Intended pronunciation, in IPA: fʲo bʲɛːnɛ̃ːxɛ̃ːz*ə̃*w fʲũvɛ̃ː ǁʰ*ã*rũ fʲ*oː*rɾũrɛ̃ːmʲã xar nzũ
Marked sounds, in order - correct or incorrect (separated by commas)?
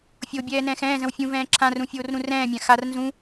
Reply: correct, correct, correct